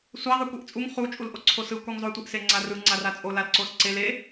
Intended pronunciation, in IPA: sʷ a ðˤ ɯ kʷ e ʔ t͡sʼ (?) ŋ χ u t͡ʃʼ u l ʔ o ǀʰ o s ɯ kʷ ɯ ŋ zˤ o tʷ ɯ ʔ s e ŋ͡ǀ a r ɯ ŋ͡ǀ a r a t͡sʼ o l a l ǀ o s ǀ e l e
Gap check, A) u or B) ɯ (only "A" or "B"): A